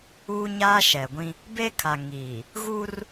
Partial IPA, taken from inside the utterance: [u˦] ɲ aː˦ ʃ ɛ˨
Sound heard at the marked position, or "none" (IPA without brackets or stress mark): uː˦